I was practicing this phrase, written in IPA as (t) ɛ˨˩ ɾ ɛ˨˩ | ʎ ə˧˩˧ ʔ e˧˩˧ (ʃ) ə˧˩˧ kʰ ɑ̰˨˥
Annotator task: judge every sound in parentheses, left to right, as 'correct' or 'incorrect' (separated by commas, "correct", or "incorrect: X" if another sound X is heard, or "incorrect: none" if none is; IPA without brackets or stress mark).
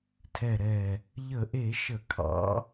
incorrect: tʰ, correct